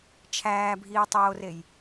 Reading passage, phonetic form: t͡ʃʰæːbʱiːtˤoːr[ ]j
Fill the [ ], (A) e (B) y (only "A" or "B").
A